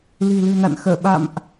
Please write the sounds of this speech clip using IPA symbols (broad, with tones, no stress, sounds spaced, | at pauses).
l i̤˨˩ l ɨ̤˨˩ n a̰˧˨ n x əː˧˩ ɓ a̰˧˨ m ʔ